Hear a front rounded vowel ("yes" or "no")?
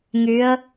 yes